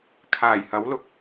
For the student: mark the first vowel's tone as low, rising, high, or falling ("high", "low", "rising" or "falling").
low